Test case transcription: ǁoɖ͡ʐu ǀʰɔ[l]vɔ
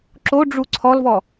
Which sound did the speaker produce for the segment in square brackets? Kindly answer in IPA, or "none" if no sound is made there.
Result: l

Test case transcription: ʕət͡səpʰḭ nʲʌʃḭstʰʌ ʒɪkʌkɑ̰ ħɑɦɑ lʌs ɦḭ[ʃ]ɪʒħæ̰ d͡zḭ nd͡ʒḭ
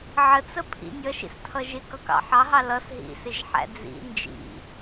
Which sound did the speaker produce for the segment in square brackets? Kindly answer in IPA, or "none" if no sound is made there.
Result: s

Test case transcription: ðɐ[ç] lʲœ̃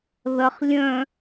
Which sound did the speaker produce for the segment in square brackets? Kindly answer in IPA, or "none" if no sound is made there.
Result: χ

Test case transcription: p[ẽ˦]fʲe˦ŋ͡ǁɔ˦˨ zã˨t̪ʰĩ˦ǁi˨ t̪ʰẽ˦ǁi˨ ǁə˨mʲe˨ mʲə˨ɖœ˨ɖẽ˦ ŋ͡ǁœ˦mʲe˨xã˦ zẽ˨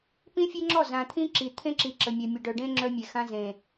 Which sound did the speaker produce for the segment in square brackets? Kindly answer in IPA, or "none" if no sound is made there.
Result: ĩ˦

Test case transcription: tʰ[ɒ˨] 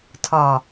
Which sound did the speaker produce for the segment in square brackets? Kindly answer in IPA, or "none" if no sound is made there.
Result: ɒ˨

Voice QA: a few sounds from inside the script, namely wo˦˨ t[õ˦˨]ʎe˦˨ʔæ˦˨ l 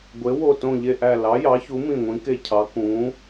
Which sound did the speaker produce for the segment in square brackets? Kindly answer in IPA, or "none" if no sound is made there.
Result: õ˦˨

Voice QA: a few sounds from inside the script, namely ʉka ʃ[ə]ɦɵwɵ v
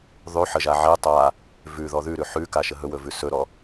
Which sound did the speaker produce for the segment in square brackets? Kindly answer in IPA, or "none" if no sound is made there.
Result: ə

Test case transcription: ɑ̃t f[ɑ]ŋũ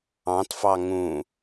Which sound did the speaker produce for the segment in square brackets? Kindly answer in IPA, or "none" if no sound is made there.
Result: ɑ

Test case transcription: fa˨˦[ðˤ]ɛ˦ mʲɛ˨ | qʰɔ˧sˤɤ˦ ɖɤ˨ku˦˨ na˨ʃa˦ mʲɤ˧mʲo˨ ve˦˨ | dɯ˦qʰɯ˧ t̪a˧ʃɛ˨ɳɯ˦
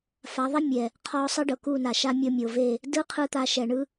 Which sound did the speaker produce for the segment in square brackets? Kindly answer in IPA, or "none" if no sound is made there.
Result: ðˤ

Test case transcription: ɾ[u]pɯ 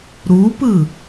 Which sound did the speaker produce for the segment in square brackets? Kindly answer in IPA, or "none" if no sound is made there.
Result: u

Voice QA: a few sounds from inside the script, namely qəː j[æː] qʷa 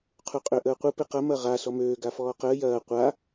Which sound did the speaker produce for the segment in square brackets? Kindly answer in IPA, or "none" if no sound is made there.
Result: ɐː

